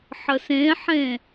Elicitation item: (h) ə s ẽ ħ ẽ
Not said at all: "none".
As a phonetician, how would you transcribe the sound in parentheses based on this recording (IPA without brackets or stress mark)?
ħ